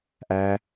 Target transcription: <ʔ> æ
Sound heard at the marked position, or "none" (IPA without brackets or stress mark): ʔ